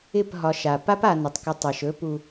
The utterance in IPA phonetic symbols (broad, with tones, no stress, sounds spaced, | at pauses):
ɪ˦˨ p ɦ ɒ˨˦ ʃ a˨ p a˦ p a˨ n ɪ˨ tˤ k ɪ˦ tˤ ɛ˨ ʃ ɵ˦ p u˨